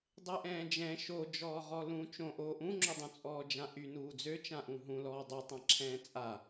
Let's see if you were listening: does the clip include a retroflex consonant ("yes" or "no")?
no